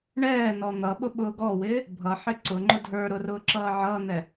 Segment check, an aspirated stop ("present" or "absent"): absent